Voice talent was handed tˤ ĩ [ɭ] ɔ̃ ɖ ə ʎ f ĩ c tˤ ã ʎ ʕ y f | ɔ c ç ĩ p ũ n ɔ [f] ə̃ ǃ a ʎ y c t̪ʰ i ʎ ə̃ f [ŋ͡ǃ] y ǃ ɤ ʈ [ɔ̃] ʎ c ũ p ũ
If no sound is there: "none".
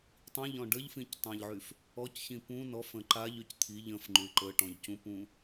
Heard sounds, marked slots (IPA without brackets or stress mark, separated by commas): ʎ, f, ŋ͡ǃ, ɔ̃